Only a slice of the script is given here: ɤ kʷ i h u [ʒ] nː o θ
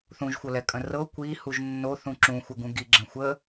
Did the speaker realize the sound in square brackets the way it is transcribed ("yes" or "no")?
yes